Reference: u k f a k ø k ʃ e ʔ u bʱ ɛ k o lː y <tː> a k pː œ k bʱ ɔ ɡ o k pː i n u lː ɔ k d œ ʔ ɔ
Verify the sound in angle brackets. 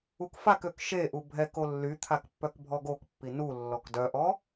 incorrect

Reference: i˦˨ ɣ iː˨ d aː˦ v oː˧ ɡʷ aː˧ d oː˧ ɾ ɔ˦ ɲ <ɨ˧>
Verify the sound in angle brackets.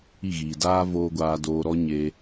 incorrect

